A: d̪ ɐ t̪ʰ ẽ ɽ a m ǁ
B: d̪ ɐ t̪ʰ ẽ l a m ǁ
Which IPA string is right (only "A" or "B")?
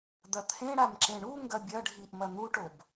A